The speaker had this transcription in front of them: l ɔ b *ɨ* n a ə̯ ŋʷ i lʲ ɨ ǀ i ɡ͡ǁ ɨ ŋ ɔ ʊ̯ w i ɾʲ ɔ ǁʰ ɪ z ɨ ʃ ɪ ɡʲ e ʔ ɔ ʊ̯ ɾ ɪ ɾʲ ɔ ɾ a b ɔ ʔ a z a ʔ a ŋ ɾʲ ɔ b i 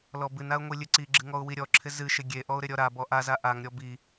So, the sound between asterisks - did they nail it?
yes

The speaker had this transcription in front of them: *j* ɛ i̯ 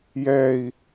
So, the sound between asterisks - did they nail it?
yes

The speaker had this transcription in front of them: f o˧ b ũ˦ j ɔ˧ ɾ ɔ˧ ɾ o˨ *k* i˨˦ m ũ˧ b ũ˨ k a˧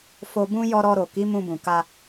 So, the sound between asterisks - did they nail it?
yes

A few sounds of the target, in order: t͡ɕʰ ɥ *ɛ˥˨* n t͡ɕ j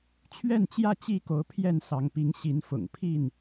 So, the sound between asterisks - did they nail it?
yes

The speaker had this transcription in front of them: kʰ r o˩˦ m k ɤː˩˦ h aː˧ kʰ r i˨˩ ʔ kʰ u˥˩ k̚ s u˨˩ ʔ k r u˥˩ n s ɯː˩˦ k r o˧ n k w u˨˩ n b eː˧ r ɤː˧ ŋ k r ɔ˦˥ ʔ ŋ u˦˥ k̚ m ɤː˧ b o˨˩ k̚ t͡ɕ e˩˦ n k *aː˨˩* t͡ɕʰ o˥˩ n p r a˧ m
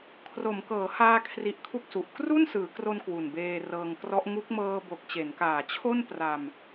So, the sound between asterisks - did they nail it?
yes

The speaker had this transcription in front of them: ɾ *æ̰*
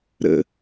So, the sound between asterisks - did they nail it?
no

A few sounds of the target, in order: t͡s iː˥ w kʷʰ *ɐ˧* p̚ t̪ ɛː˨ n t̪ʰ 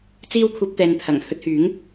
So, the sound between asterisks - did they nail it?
yes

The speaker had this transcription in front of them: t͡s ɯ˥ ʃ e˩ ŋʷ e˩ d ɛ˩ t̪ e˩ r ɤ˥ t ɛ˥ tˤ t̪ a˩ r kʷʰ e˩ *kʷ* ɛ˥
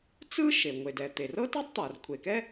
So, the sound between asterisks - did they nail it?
no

